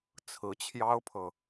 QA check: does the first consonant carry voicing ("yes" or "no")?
no